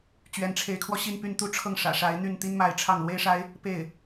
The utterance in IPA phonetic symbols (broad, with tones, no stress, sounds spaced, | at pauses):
t͡ɕ ɥ ɛ˧˥ n ʈ͡ʂʰ e˧˥ ɪ̯ kʰ w ɔ˧ ɕ i˥˧ n p y˥˧ n t̪ u˥˧ ʈ͡ʂʰ ɤ˥˩ ŋ ʂ ä̰˨˩ ʂ a˧˥ ɪ̯ n̪ y˥˩ n t̪ i˥ n m a˧˥ ɪ̯ ʈ͡ʂʰ ɑ˥˩ ŋ l w e˥ ɪ̯ ʂ a˥ ɪ̯ | p e˥˩ ɪ̯